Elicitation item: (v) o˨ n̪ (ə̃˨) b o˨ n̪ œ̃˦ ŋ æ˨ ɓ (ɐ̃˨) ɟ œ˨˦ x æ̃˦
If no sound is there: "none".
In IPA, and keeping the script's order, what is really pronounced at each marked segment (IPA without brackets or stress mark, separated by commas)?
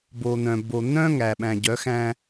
b, œ̃˨, æ̃˨